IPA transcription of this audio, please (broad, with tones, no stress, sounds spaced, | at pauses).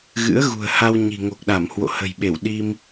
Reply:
ɣ ɨ̰˧˥ ə̯ ɣ ṳ˨˩ ə̯ h a˧ w ɲ i̤˨˩ ŋ o˨˩ k̚ ɗ a˧˩ m h w o̰˧˨ h ə̤˨˩ j ɓ e˧˩ w ɗ i˧ m